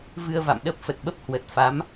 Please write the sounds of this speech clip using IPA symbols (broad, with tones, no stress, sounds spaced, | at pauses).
v ɨ˧ ə̯ v a̰˧˨ m ɗ ə˦˥ p̚ f ə˨˩ t̚ ɓ ə˦˥ p̚ h w ə˨˩ t̚ f a˨˦ m